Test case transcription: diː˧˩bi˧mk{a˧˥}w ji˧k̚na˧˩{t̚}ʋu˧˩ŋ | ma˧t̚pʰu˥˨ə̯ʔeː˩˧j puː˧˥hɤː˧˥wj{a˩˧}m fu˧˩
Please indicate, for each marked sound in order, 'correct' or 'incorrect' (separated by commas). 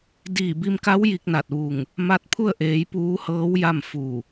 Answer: correct, correct, incorrect